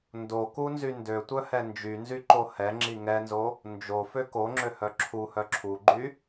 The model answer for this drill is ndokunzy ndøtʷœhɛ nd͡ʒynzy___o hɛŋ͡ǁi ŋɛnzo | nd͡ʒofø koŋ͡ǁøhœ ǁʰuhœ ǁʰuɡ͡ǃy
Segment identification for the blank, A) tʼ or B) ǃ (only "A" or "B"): B